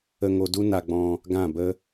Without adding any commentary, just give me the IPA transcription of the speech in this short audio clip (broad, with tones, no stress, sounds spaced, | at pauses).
ə˧ ŋ o˧ d u˦ n a˧ ɡ͡b ɔ̃˧ | ɡ ã˦˨ b ə˦